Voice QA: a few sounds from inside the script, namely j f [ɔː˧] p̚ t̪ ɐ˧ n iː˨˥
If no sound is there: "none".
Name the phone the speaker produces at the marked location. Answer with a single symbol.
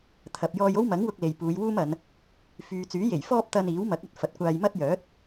ɔː˥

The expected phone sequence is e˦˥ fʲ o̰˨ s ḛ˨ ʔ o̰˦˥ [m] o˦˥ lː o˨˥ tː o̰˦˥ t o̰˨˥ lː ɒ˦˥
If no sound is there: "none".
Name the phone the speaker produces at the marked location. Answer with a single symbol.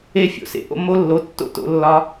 m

